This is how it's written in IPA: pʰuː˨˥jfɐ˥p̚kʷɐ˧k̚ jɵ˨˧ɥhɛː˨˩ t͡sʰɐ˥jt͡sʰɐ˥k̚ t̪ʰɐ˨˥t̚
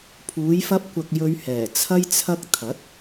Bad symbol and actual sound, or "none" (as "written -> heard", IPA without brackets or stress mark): none